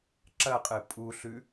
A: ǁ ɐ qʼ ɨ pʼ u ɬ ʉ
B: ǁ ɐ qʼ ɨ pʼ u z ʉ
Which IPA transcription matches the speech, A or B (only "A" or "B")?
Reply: A